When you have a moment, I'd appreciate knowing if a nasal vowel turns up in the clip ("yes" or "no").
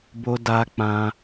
yes